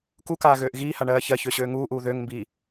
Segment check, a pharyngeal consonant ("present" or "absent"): absent